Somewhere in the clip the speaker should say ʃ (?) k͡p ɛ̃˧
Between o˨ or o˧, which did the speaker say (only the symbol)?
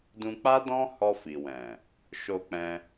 o˧